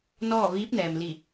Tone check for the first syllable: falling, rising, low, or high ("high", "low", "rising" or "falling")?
falling